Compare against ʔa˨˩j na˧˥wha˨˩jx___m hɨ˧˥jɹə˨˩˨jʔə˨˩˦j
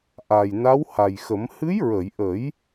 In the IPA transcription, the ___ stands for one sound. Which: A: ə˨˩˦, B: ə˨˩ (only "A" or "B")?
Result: A